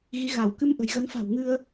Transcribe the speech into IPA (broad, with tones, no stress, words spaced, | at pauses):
ɣi˨˦ɣa˧˩w kɨ˧m ʔə̤˨˩jɣə˨˦nfa̤˨˩wŋɨ˧ə̯